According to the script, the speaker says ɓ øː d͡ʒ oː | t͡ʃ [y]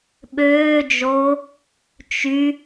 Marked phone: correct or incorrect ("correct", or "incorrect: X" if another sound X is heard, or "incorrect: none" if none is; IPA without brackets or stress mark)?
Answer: correct